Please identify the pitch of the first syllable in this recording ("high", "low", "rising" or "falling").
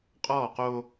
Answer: falling